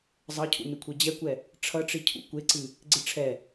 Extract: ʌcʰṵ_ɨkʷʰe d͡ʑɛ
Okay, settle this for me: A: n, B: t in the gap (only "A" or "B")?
A